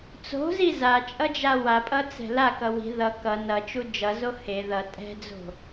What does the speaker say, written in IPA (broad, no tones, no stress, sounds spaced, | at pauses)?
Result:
t͡s o̤ z i z a t͡ʃʼ ʌ d͡ʒ a w a pʼ ʌ t͡s ɛ̤ l a k ʌ w i̤ ð ʌ k ʌ n ʌ t͡ʃ u d͡ʒ ʌ z o h e ð ʌ tʼ ɛ̤ d͡z o̤